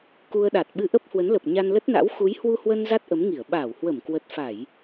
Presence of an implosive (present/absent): present